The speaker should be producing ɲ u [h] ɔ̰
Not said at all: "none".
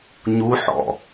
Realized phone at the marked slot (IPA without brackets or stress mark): ħ